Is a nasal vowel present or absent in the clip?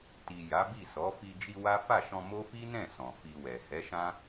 present